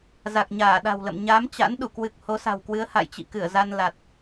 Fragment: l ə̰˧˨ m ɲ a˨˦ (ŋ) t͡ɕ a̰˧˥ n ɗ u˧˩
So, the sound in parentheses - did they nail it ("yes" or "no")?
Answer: no